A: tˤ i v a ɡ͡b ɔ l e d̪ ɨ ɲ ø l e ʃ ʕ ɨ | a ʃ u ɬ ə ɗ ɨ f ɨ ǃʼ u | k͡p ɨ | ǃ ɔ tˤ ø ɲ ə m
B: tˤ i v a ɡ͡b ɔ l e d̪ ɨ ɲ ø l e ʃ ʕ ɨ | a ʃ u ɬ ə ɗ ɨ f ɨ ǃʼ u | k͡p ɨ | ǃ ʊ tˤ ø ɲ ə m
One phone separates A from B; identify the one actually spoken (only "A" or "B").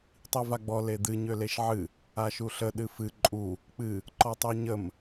A